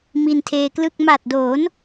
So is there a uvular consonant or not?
no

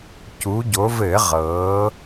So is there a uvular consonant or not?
yes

